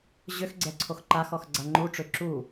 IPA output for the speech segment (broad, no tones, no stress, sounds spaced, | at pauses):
ʑ ʏ x ɡ͡ǀ ɛ ǀʰ o x ǃ a x ɔ x ɡ͡ǀ a ŋ͡ǃ u ʈ͡ʂ ʏ ǁ u